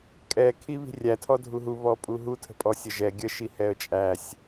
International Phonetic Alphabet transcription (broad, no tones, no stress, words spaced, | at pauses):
kʼɛ kʰiβi̤rʲæ tʰɔdʱuɦu βɔpʼuɦu tʰə̤pʼɔsʲəʒɛ ɡʲə ʃihɛə̯t͡ʃʼæsʲ